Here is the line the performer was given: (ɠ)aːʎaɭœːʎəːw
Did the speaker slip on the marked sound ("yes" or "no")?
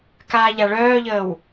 yes